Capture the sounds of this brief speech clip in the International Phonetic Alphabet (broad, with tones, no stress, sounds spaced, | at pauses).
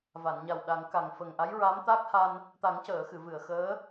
v a˨˩˨ n ɲ a˨˩ w ɗ a˨˩˦ ŋ k a˨˩ ŋ f ə˨˩ ŋ ʔ a˧˥ j ɹ a˧˥ m t̪ a˦˥ k̚ h a˧ n | t̪ a˨˩˦ ŋ c əː˨˩˨ x ɨ˨˩˨ v ɨ˨˩˨ ə̯ x əː˧˥